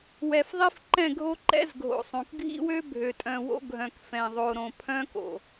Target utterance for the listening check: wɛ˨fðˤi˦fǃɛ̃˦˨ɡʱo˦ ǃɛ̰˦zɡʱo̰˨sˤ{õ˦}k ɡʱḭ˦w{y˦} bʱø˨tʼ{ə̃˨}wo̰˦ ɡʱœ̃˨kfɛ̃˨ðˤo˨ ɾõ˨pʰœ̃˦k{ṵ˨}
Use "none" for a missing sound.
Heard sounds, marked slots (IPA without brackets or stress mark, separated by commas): õ˨, ø˦, œ̃˨, o̰˨